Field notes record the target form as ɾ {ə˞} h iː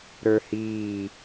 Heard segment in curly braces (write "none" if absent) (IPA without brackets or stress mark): ə˞